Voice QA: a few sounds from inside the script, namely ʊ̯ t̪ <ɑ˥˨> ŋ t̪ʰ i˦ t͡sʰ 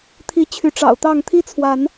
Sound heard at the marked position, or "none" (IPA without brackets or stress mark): ɑ˥˨